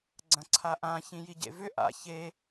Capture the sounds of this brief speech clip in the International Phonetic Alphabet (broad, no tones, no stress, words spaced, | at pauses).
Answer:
ɡ͡ǀɐ̃ǀʰaʔã çĩjiɟḛvʏ ʔa̰ çe